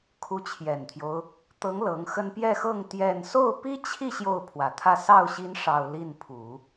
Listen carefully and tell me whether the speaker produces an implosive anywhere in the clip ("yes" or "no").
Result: no